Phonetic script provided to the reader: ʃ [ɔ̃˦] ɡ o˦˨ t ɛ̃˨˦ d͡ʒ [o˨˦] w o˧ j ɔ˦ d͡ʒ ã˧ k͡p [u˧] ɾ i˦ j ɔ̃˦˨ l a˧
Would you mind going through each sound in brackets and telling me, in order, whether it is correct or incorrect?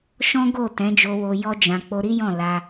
correct, incorrect: o˧, incorrect: o˧

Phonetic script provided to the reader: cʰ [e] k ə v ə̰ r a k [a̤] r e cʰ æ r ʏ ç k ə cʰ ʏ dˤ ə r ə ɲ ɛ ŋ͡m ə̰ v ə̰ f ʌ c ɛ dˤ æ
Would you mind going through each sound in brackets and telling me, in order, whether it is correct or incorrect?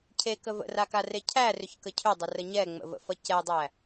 correct, incorrect: a

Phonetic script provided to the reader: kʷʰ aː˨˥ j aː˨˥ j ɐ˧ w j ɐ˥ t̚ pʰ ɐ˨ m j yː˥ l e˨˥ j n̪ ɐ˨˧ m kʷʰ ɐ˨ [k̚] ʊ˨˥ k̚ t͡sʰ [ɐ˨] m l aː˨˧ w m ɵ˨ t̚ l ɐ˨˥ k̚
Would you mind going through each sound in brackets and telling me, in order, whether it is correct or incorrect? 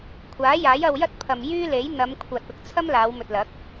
incorrect: t̚, incorrect: ɐ˥

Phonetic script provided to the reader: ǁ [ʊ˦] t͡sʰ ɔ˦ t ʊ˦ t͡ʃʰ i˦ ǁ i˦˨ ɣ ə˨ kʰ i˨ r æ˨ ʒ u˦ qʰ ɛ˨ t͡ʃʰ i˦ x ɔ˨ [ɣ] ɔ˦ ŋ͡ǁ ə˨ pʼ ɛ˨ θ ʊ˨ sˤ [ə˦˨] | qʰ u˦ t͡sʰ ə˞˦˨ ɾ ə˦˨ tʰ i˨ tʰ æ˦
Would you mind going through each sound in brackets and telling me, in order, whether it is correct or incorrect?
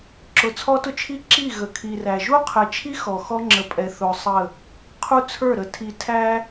incorrect: ʊ˨˦, incorrect: x, correct

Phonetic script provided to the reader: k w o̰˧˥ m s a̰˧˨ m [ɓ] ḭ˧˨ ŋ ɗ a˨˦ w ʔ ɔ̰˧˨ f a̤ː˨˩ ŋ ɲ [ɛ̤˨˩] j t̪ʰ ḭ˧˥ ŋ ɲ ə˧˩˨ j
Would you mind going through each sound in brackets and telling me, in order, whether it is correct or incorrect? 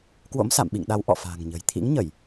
correct, incorrect: ə̤˨˩

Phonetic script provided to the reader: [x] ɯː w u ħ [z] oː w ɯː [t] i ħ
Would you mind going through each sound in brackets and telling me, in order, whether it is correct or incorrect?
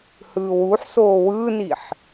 incorrect: h, incorrect: s, incorrect: n

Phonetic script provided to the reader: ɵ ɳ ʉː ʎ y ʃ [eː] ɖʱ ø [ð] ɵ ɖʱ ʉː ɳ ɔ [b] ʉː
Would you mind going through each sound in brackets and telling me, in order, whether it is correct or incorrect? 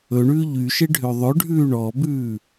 incorrect: e, incorrect: ðˤ, correct

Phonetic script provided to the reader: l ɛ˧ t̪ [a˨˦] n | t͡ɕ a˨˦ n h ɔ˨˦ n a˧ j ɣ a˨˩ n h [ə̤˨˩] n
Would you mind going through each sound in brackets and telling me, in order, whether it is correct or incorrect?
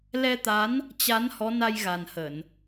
correct, incorrect: ə˧˩˨

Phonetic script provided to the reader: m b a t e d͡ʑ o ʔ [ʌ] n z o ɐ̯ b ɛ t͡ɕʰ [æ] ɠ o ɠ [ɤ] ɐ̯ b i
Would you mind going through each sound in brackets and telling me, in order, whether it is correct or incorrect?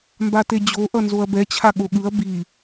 correct, incorrect: a, incorrect: ɯ

